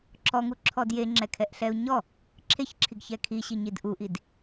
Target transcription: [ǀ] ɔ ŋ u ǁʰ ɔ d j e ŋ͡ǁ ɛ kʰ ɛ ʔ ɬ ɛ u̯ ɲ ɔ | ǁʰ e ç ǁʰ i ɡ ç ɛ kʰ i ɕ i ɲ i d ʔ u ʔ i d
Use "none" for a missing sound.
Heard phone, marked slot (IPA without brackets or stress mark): ǁ